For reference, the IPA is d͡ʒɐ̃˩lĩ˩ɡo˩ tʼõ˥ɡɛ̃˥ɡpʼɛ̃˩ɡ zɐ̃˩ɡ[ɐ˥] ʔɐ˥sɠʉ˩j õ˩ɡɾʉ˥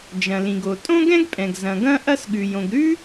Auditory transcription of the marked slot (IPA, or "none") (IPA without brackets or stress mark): ɐ̃˥